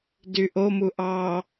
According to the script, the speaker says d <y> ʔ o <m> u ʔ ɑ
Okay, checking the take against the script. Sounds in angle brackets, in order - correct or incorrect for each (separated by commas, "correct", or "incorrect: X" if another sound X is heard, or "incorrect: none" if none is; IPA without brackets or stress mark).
correct, correct